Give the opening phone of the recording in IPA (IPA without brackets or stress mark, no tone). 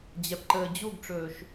d͡ʑ